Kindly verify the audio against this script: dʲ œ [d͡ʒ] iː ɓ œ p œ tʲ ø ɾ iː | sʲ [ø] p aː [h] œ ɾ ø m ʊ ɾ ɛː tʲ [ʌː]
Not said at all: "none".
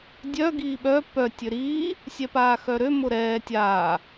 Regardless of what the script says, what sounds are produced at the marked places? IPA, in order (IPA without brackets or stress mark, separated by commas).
ɡ, ɛ, x, aː